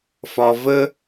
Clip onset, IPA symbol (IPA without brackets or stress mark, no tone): f